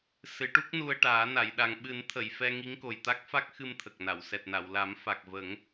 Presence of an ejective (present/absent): absent